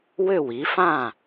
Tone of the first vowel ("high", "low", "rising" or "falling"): falling